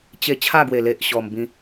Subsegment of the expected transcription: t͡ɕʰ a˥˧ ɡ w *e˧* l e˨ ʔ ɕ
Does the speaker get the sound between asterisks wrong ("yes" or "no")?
yes